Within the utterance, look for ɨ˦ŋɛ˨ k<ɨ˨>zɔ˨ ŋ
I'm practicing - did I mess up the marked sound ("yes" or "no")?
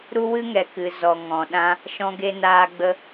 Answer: no